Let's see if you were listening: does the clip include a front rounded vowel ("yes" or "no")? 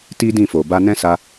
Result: no